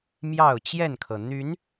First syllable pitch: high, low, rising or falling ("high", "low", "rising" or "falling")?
falling